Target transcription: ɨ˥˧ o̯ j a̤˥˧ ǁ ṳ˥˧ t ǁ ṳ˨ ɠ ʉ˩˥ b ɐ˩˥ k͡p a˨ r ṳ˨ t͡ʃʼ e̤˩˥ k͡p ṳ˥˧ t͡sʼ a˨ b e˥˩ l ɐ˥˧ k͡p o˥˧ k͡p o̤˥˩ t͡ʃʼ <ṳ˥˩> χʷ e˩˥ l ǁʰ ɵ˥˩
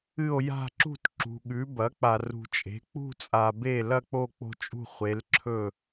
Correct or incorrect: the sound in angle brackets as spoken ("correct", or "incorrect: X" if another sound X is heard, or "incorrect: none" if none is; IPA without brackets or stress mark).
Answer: correct